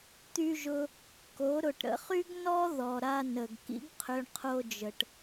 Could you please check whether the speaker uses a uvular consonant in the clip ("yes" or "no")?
yes